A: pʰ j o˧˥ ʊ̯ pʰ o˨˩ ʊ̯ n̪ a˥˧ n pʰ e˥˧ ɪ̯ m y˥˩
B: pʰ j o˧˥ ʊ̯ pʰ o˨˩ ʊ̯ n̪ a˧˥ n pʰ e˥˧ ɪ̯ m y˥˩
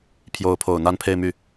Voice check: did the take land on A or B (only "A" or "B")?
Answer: A